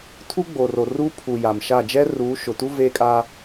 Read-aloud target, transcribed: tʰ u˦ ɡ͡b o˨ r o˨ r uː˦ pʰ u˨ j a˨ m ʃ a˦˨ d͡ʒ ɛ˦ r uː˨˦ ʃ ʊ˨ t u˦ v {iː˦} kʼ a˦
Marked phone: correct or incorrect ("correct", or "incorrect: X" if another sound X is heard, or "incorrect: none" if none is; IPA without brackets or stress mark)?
incorrect: eː˦